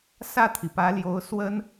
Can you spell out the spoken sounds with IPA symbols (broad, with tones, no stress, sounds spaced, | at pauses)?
s ä˥˩ t̪ʰ i˩ p ä˧˥ l j o˧˥ ʊ̯ s w ə˥ n